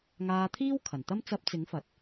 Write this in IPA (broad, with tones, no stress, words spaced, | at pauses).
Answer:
ŋaː˧t̪ʰiː˥wkʰɐ˨˩nt̪ɐ˥m t͡sɐ˧p̚t͡sɪ˨˥ŋ fɐ˨˥t̚